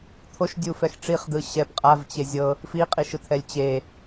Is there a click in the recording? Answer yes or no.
no